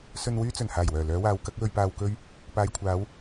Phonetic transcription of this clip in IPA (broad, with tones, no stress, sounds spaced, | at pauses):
s ɵ˧ n w yː˥ t͡s ɵ˨˩ n h aː˨˩ j w œː˨˩ l œː˨˧ w aː˨˧ w k ɐ˨˥ k̚ w ɵ˧ ɥ p aː˧ w k ɵ˥ ɥ | p aː˨ j kʷʰ aː˨˧ w